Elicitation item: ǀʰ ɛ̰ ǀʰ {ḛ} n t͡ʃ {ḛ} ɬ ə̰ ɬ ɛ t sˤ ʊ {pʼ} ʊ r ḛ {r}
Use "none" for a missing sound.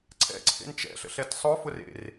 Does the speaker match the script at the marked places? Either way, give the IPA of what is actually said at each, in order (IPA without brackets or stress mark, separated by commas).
ḛ, ɛ̰, f, r